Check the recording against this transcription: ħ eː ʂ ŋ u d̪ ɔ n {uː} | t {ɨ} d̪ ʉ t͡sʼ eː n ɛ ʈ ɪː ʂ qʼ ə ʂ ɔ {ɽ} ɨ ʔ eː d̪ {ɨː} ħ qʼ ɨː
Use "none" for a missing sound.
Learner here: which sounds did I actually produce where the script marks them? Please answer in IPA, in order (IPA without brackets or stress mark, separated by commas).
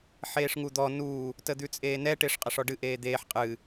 uː, ə, ɖ, eː